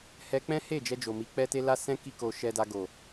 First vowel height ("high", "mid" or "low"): mid